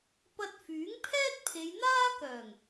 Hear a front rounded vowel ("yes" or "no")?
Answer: yes